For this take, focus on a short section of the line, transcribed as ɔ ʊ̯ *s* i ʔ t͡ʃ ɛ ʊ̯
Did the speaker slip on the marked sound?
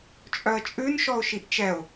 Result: yes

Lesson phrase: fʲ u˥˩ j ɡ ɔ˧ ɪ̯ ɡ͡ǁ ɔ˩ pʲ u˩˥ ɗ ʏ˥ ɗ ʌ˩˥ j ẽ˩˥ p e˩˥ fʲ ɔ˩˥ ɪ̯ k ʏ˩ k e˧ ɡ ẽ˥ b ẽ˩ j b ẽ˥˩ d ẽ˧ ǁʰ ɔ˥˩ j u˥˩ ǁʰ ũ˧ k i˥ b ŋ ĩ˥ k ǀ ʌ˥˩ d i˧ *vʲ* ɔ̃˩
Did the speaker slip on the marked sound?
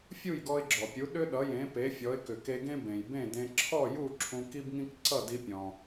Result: yes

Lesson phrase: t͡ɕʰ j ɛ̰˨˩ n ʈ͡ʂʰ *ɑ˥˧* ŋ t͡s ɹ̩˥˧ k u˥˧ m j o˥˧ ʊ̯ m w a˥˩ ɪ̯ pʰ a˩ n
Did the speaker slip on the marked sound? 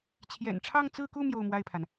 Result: no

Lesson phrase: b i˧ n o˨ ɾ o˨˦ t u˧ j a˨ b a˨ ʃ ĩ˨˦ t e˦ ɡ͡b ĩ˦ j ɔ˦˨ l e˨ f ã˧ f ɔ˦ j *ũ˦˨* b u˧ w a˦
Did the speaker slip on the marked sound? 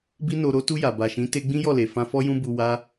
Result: yes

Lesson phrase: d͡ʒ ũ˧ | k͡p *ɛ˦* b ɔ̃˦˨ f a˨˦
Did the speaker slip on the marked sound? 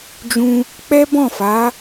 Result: no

